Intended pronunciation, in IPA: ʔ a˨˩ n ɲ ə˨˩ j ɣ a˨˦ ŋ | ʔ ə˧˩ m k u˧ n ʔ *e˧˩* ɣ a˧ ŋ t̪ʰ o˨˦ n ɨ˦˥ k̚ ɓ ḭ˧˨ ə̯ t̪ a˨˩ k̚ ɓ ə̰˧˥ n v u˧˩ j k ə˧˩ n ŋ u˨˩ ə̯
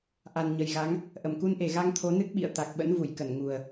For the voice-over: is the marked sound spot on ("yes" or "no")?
yes